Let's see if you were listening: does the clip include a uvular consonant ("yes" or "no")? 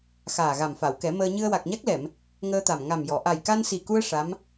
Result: no